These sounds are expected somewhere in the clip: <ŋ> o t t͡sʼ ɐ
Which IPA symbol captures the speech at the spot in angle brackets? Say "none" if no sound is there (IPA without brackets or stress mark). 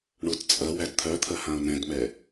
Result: ɳ